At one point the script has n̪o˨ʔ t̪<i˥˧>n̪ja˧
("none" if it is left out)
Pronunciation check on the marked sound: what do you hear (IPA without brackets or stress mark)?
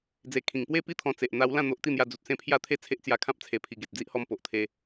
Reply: i˥˧